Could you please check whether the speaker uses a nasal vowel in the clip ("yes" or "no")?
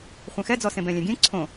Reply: yes